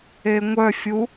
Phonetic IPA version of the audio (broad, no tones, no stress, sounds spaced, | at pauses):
e ŋʷ œ fʲ u